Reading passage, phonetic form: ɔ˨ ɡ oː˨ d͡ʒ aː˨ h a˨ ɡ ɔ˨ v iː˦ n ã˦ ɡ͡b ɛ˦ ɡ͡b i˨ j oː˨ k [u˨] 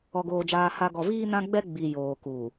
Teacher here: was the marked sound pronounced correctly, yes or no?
no